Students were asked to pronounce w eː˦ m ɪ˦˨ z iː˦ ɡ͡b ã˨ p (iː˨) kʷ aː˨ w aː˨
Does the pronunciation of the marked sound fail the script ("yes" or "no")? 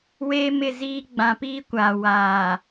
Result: yes